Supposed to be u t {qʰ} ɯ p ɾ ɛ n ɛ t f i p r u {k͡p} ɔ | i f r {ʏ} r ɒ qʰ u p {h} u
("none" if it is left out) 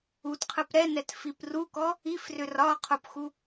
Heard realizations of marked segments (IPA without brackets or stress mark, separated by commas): qʰ, k, ʏ, x